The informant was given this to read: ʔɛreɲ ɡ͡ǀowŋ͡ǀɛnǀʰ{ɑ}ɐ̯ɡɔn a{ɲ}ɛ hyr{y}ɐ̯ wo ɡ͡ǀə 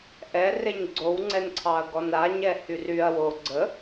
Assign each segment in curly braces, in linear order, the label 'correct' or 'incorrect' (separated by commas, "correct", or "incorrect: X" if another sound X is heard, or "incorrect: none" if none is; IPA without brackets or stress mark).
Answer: correct, correct, correct